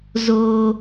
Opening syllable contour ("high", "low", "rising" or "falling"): high